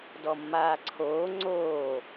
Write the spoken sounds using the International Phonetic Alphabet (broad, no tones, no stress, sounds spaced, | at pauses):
d ɔ mː aː ǀʰ oː ŋ͡ǀ oː